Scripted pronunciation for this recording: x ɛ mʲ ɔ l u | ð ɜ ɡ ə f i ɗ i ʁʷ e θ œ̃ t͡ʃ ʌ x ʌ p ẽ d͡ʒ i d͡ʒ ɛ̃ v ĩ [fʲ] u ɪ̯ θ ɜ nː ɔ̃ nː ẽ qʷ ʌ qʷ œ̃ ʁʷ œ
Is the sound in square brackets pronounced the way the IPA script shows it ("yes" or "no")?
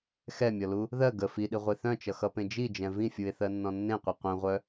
yes